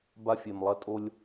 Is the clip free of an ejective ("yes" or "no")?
no